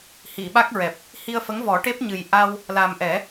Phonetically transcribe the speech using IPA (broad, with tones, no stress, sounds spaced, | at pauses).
h i˨˩˨ ɓ a˦˥ k̚ ɹ ɛ˨˩ p̚ | h i˧ ə̯ f ə˧˥ ŋ v ɔ˨˩˦ ʈ e˦˥ p̚ ɲ ɨ˨˩ j ʔ a˧ w | l a˨˩ m ʔ ɛ˨˩˦